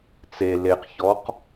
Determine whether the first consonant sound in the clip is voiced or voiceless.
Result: voiceless